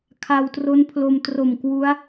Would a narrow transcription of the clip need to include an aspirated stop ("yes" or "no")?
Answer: yes